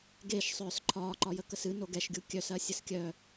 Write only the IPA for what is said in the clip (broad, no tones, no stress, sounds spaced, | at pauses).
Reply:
ɡ e ʃ sˤ œː s ǃʰ ɒː ǃ ɒ j ə k ə s ɨ n o ɡ ɛ ʃ ɡʲ u kʲ œ s ɜ sʲ ə s kʲ œ